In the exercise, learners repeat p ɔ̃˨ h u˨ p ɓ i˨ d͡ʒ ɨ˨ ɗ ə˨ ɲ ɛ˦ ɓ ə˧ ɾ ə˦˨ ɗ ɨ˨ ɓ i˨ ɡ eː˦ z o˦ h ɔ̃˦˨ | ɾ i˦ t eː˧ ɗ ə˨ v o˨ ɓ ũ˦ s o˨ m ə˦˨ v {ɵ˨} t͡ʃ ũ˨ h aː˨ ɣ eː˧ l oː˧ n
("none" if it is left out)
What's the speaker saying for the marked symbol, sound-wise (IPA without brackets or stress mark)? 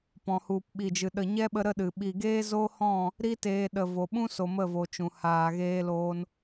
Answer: o˨